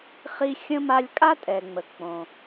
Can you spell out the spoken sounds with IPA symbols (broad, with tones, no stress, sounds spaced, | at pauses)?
χ i˦ xʲ ə̃˥ m a˦ lʲ kʼ a˥ tʼ ɛ˩ ŋ͡m ə˩ k͡p õ˩